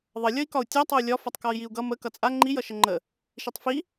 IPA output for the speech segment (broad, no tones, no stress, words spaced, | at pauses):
ðˤʌ lʲʌi̯kɒu̯tʲa tˤʌu̯lʲɒ fʌtˤkɒi̯jiu̯ɡʌ mə kʌt͡sʼa ŋ͡ǃi jʌʃəŋ͡ǃə | ʃitˤfi